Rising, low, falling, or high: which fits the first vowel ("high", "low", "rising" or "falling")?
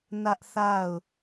high